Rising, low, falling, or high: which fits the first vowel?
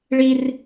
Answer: high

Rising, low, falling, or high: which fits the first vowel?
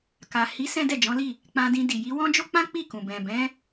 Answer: low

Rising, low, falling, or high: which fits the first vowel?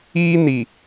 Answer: high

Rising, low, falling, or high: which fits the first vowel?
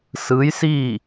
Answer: rising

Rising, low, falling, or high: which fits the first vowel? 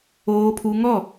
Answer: high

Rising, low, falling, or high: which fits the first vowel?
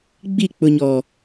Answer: falling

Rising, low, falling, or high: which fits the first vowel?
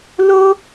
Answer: high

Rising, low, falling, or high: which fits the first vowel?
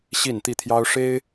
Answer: falling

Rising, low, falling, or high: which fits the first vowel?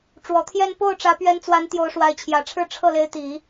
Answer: low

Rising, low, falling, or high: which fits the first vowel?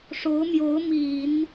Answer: rising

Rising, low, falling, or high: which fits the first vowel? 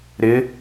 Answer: rising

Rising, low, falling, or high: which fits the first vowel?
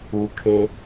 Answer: low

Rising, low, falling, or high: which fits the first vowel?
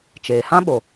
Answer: low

